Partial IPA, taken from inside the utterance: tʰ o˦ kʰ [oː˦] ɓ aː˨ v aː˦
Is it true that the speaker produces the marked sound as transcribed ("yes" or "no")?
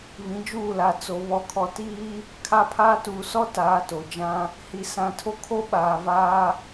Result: no